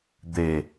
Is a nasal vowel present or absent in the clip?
absent